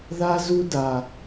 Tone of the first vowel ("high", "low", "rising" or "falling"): high